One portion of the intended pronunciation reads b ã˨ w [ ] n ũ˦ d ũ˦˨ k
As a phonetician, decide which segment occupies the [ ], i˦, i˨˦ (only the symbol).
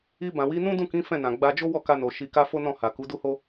i˨˦